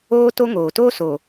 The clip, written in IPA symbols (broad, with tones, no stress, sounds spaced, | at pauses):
oː˦ t o˦ ŋ oː˨ t oː˦ s oː˨